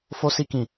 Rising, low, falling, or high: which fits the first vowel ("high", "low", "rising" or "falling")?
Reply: high